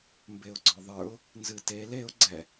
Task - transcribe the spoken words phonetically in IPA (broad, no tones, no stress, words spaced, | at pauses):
mbeʊ̯ɡ͡ǀɔðˤə˞ʊ̯ | nzɨtel eʊ̯ ɡ͡ǀɛ